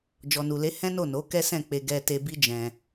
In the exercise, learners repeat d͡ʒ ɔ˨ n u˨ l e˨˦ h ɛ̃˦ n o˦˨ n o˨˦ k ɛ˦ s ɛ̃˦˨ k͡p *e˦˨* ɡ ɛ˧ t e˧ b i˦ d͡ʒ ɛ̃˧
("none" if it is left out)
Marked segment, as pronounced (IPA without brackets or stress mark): e˧